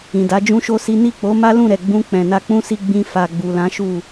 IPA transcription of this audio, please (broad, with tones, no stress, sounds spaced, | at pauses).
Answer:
ĩ˨ d a˨˦ d͡ʒ ũ˦ ʃ o˦ s i˦ n i˦˨ k͡p o˨˦ m a˦ l ũ˦˨ ɾ ɛ˨ ɡ͡b ũ˧ k͡p ɛ̃˨ n a˧ k͡p ũ˦ s i˧ ɡ͡b ĩ˧ f a˨ ɡ͡b u˨ l ã˨˦ ʃ u˦˨